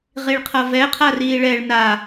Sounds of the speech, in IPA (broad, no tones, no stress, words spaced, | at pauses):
ʁiɭqʰʌvɛ qʰariːɭɛɭ na